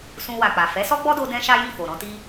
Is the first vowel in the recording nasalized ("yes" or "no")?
yes